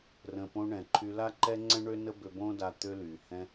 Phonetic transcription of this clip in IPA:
r ə̃˨ p õ˧ ɳ ɛ̃˨ ǃʰ y˧ l a˦ ǃ ɛ˦ ŋ͡ǀ ɛ̃˦ ɳ ø˦ n ə˦ b ø˧ b õ˦ d a˧ t̪ ø˧ l y˨ h ɛ̃˧

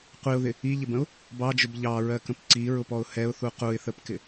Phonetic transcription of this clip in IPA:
qʷ i ʊ̯ ð ɪ | i ʎ ɪ b ə̃ ʊ̯ | b ɑ d͡ʒ ʊ b ʎ ɑ ɹ ɜ k ə̃ p ǀ i ɹ ʊ p ɔ ʊ̯ h ɛ ʊ̯ θ u q u ɪ̯ θ ə p k ɪ

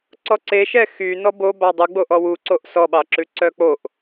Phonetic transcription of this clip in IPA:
ǀ ɔ ǀ e ʃ ɛ x y n ɔ b o b ɑ dˤ u ɡ͡b o ʔ ɔ w u ǀ o ʔ s ɔ ɓ ɑ ǁ ʉ ǀ œ k͡p o ʔ

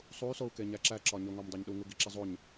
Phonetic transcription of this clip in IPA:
sˤ u y̯ s o u̯ k e ɲ æ ǁ æ ǁ ɒ ɲ o ŋ ɒ m dˤ æ ɲ ɗ u ŋ u ɡ i ǁ i zˤ o ɲ

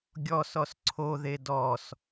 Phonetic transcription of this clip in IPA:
ɡʲ ɔ s ɔ s ǀʰ o ð e d ɔ s

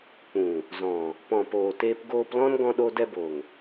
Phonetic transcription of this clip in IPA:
k͡p ũ˨ | z ɔ̃˨ | p ɔ̃˨ p oː˨ t eː˧ p ɡ oː˧ p l ɔ̃˦ n ɡ ɔ̃˧ ɗ o˧ d ɛ˧ b o˨ ŋ

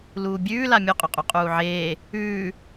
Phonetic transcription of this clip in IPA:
l uː bʲ ʉː l a mʲ u qʼ ɵ qʼ u qʼ uː ʕ eː | ʉː

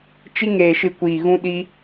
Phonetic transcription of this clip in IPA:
t͡ʃ i˧ ŋ eː˨ ʃ ɨ˨ kʷ iː˨ ɣ ũ˧ ɗ i˧

